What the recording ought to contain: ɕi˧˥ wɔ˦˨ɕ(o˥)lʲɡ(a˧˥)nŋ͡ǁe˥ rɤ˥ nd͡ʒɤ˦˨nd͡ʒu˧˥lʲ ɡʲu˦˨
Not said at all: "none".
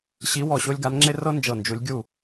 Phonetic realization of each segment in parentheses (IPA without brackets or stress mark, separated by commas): o˥, a˧˥